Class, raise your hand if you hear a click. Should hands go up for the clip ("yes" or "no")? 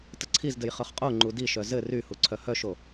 yes